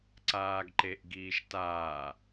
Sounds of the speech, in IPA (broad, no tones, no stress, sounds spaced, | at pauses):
ǀ aː ɡ ǃ e ʔ ɡ iː ʃ t aː